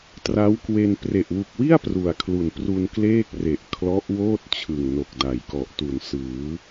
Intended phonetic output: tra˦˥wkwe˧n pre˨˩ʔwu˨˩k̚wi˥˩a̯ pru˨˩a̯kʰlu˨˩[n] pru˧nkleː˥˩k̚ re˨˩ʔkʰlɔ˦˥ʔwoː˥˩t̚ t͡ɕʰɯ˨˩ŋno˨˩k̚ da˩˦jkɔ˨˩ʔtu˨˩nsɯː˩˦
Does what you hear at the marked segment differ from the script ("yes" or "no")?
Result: no